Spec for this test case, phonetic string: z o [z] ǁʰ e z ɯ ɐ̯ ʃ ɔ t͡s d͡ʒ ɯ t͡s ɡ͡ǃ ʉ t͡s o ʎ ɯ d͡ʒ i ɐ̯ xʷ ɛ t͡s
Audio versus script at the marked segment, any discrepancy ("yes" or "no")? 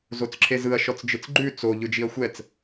yes